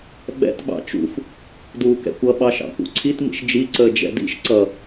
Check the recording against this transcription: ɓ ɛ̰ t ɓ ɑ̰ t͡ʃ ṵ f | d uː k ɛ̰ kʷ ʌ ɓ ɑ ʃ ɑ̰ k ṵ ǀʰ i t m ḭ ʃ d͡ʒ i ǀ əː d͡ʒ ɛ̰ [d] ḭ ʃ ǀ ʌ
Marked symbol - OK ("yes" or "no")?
yes